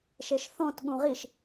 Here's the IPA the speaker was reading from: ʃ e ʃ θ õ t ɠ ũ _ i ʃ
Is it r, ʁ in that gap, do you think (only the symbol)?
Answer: ʁ